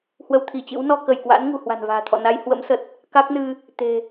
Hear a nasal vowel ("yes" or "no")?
no